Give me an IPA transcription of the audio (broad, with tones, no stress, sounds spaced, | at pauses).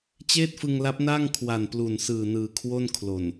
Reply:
t͡ɕ eː˥˩ t̚ f ɯ˧ ŋ l a˦˥ p̚ n aː˥˩ ŋ kʰ w a˨˩ n p l u˨˩ n s ɯː˨˩ n ɯː˨˩ kʰ w o˥˩ n kʰ l o˨˩ n